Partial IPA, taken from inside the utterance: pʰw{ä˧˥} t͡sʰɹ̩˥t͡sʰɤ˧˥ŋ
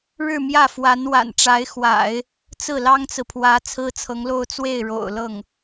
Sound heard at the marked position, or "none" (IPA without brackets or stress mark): ä˧˥